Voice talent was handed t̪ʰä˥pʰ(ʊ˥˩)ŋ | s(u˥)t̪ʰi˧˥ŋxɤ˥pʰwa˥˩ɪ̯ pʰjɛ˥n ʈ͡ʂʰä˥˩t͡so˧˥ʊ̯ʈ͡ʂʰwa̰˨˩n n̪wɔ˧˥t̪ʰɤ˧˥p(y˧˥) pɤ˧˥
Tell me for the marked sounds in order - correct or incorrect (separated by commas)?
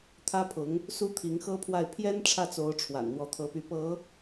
incorrect, correct, correct